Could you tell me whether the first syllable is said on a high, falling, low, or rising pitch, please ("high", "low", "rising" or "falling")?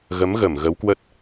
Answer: rising